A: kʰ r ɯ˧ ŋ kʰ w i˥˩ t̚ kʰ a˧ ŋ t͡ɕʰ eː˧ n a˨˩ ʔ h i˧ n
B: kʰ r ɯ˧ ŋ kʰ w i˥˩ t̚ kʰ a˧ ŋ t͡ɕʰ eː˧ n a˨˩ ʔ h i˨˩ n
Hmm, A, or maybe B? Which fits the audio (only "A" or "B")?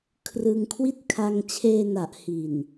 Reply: B